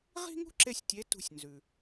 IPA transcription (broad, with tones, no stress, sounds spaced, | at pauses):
ʁ i̤˥ ŋ ṳ˥ ǁ e˧ sʲ tʲ e˧˥ t ṳ˧ sʲ n z ʉ˩